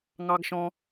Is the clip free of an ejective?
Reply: yes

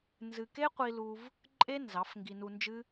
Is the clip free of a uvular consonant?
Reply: no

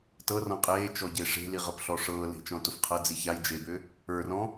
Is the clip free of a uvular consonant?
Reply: no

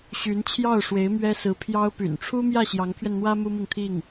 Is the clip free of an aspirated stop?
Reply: no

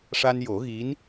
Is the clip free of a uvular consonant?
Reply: yes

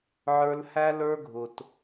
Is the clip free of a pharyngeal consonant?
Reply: no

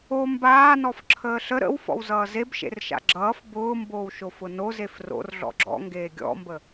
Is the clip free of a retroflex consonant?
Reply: yes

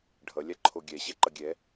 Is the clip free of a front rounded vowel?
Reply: yes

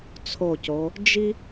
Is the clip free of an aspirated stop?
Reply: no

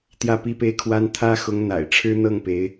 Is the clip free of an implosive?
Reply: yes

